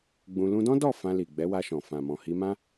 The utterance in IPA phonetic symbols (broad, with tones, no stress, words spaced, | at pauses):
ɡ͡bũ˧ lũ˧dɔ̃˦dɔ˦˨ fã˧li˨ ɡ͡bɛ˨˦wa˧ʃɔ̃˨ fã˨mɔ̃˨ hi˧mã˦